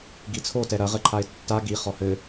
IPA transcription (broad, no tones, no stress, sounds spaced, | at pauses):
ɡ i t͡sʰ o t ɛ ɾ ɐ ʁ ɘ ǃʰ a ɪ̯ tː a ɡ i χ ɔ h ɘ